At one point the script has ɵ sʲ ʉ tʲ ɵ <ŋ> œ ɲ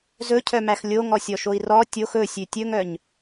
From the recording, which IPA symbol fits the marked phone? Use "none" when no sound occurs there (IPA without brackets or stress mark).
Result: ŋ